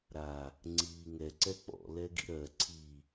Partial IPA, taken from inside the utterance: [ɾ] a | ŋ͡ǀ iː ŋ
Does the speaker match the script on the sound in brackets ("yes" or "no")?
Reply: yes